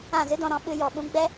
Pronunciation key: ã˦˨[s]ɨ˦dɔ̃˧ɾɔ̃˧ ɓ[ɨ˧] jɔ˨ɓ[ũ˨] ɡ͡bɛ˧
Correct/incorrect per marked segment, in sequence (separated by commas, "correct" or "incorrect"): incorrect, correct, incorrect